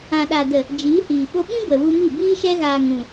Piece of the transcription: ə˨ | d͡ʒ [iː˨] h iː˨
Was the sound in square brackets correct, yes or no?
no